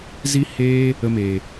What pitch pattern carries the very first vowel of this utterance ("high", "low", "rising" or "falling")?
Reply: high